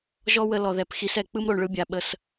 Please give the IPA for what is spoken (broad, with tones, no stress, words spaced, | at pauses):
ʒɔ˦wə˧ lɔ˨ðɛ˨pxi˨˦sɛ˨ k͡pɯ˦mɾo˨ɳɭɯ˦bʲa˨ ɓə˧s